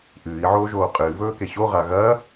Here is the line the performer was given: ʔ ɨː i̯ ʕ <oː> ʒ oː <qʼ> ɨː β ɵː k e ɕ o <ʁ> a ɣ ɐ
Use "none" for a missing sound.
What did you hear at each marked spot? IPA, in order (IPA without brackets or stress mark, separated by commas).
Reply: oː, qʼ, ʁ